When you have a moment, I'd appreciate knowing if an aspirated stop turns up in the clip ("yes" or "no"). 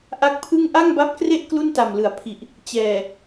yes